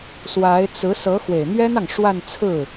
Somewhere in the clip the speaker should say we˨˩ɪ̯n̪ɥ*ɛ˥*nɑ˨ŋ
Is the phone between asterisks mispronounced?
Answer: no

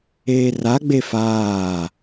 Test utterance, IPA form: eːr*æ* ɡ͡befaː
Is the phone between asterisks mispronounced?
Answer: yes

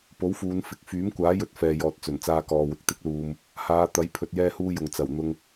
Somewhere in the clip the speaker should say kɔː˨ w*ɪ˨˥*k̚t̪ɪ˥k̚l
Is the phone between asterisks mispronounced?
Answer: yes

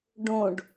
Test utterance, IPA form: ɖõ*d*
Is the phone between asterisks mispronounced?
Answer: yes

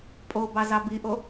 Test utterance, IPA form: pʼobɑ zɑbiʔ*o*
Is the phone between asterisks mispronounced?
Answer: no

